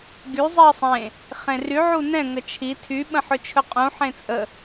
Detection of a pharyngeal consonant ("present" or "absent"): present